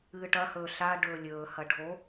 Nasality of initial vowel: oral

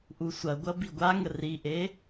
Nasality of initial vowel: oral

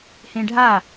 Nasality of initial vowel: nasal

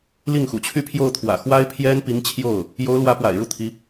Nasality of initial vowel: oral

